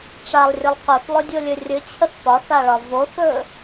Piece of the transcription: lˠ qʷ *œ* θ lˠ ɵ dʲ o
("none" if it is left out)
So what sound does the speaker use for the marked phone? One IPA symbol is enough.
œ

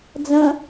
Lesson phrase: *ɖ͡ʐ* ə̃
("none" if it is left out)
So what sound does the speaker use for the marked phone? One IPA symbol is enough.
d͡z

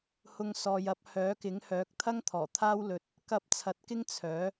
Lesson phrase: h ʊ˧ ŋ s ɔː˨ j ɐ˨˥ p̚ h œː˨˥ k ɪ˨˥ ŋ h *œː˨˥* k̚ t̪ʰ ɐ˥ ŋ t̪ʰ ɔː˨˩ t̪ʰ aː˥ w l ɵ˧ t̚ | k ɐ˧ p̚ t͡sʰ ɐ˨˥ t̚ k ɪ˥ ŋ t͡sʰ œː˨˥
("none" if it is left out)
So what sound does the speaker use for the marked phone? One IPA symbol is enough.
œː˨˥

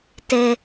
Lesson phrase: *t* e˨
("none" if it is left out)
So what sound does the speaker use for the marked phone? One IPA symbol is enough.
t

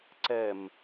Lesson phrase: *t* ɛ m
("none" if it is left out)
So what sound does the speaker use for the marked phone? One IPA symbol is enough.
ǀ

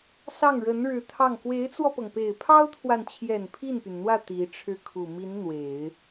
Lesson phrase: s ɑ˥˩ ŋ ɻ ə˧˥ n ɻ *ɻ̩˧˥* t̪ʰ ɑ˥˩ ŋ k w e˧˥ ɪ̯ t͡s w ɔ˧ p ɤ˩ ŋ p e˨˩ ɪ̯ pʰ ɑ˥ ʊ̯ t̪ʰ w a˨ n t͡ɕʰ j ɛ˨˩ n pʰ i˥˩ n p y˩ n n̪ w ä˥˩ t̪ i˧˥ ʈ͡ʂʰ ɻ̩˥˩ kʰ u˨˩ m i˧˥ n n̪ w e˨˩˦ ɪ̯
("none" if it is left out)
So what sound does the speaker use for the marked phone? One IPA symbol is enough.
ɻ̩˧˥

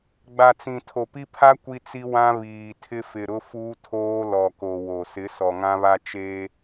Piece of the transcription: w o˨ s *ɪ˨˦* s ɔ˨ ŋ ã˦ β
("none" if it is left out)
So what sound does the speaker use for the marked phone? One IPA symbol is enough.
ɪ˨˦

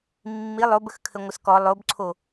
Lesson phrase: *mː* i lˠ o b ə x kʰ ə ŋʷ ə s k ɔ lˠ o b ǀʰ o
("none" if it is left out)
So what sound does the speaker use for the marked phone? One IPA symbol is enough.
mː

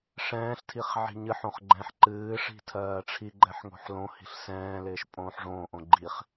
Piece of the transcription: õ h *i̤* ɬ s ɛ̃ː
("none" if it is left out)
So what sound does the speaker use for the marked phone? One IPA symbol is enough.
i̤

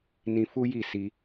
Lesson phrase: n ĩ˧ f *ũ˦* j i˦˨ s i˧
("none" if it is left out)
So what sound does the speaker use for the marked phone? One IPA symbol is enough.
u˦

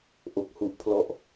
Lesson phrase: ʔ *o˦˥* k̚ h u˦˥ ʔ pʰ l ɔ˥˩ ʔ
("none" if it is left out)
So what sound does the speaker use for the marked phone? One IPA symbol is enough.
o˦˥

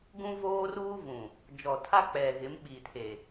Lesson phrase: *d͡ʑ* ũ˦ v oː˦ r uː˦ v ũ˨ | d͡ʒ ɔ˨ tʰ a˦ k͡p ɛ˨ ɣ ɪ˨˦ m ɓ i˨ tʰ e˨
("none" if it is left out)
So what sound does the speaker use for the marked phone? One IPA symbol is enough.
ɡ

